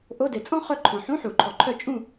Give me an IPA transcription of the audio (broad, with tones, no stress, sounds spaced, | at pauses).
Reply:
ʔ o˧˥˧ d e˨ t͡sʼ ɔ̃˥ χ œ˦˨ ǃʰ ɔ̃˨ ħ ũ˧˥˧ ħ u˨˩˦ ǃʰ ɔ˨ ǃʰ œ˦˨ t͡ʃʼ ũ˦˨